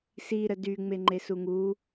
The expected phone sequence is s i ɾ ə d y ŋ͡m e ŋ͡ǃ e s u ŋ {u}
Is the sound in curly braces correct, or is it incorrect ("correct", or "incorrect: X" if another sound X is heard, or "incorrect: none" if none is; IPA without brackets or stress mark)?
correct